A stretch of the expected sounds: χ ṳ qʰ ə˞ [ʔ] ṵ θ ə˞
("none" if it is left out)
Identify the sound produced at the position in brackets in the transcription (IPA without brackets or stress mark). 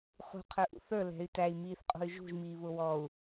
ʔ